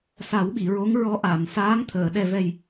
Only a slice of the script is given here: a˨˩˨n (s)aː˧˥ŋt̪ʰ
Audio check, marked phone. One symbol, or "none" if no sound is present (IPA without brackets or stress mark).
s